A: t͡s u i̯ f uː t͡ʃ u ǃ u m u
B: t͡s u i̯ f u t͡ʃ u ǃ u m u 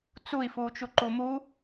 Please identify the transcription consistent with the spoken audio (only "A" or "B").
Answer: A